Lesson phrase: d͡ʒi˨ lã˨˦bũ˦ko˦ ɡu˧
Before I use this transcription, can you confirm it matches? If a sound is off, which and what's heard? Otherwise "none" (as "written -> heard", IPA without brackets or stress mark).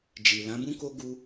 none